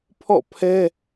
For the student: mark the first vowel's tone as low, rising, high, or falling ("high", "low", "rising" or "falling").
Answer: falling